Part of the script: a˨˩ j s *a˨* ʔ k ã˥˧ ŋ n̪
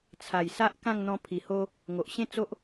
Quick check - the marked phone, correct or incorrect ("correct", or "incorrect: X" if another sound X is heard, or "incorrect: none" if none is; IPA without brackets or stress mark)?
incorrect: a˦